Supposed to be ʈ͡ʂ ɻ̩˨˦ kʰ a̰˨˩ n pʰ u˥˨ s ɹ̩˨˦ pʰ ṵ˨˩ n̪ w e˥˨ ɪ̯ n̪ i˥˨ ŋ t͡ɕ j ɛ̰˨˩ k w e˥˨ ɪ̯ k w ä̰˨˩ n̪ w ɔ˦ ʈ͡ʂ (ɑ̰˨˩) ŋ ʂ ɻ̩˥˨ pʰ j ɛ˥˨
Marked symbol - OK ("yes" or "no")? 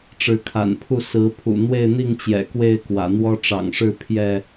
yes